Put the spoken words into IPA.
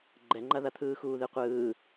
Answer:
ɡ͡ǃ ɛ ŋ͡ǃ ɐ ð ɐ t̪ʰ ɯː x uː ð ɨ qʷ ɯː

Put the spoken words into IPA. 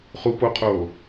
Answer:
χ u p o qʰ oː

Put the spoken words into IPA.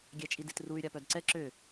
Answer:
ɡʲ ɛ t͡ʃʼ i d i t r u y̯ ɾʲ a p œ d ǀ ɛ ǁ ø

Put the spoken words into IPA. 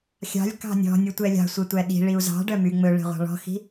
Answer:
xʲ ɑ̤ lʲ k ɑ̤ nʲ ɔ̤ nʲ ɵ tʷ ɛ lʲ ɑ̤ sʷ e tʷ æ ɗ i̤ ɭ i u̯ z ɑ̤ ɖ œ m y ŋ͡m ɵ ɭ e̤ ʁʷ ɑ̤ ɭ ɔ̤ x i̤

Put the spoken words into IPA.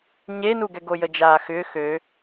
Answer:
ɲ e n u ɡ ɛ ɡ o j ə d͡ʒ aː x ʏː x ø

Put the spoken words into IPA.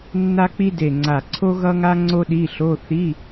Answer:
nː a˥ k͡p i˥ d e˧˩ ŋ͡ǀ a˧˩ ǀʰ o˥ ɣ ʌ˥ ŋ a˥ ŋ͡ǀ o˥ ɗ i˧˥˧ ɬ o˧˥˧ θ i˧˥˧

